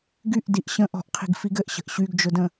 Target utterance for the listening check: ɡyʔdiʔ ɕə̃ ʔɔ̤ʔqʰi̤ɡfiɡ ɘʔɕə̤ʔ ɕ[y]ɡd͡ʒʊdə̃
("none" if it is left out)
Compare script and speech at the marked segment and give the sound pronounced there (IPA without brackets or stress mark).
y